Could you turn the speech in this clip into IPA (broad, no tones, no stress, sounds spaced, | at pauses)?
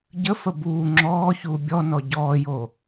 ɟ ə f ə b uː ŋ͡ǁ ɔː ç uː bʲ ɔ n ɔ ɟ ɔː j o